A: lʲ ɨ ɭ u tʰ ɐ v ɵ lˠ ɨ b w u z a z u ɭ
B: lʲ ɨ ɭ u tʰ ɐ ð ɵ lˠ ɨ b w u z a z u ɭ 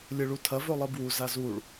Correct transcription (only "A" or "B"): A